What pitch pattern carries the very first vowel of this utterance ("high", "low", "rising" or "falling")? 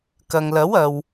low